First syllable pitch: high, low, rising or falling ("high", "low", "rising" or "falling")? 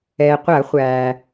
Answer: low